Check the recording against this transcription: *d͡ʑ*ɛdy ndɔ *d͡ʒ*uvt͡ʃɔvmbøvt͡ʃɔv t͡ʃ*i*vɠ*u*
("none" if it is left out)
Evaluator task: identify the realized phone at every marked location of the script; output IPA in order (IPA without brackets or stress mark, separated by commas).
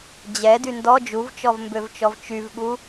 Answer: d͡ʑ, d͡ʒ, y, u